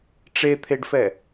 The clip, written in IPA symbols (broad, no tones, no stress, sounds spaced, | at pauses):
ʈ͡ʂ e t̪ʰ e ɖ f ɛ